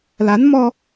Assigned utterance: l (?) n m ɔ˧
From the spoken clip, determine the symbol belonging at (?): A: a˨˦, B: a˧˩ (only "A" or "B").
A